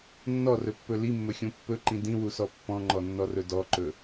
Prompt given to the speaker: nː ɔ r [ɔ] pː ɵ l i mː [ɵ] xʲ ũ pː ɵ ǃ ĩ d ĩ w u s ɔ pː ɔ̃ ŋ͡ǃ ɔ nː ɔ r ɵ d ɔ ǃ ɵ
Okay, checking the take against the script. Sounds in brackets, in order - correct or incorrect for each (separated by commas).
incorrect, correct